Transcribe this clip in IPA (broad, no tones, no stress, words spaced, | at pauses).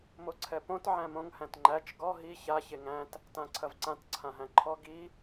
moǀʰɛpõt ʕæ̃mõŋ hæ̃tŋ͡ǃæt͡ʃ ɡɔ ɦi ça çeŋæ̃t | tãǀʰɐvǀãt ǀʰãɦæ̃ǃʰɔ ɡi